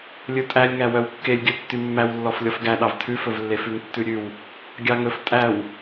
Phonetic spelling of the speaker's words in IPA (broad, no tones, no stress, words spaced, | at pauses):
lʲɵtʼælʲŋæ wœwkːelʲɡʲœ tːymːæwlːɔf lʲɔfɡæ ɗɑvtʰʉfɵvlːe fʉŋtːʉɾʲʉw | ɡʲɑŋɵf tʼæw